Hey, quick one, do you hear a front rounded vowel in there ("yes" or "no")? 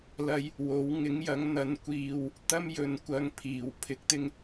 no